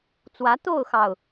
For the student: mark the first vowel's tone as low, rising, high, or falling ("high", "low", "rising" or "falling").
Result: rising